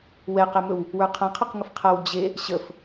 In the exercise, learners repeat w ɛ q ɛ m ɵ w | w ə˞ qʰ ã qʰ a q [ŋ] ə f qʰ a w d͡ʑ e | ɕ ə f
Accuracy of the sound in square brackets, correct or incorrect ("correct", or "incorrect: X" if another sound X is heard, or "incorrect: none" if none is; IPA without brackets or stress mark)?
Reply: correct